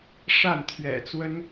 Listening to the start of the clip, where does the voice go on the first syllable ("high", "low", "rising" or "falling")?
falling